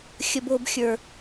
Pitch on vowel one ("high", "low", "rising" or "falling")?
high